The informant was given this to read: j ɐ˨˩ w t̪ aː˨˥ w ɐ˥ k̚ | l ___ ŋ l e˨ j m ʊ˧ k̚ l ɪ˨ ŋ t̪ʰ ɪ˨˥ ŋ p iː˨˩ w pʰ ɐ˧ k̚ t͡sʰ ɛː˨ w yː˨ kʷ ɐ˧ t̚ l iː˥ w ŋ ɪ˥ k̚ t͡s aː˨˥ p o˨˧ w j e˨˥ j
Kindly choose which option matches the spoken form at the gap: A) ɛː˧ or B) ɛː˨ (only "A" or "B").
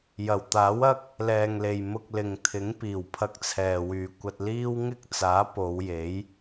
B